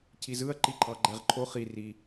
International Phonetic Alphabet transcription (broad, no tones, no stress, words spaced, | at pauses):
cʰizɯɐ̯ ǃiǃʰɑɡ͡ǃæʁǃʰo χi ri